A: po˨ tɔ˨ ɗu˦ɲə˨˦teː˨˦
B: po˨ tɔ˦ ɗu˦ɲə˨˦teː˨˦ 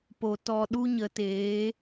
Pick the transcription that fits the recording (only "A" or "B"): A